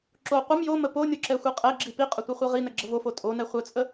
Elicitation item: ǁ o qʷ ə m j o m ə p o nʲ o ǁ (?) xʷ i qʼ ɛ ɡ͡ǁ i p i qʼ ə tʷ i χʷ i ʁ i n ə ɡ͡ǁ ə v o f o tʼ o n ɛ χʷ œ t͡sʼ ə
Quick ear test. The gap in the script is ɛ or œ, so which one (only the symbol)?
ɛ